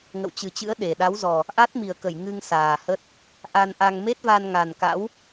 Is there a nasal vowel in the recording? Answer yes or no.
no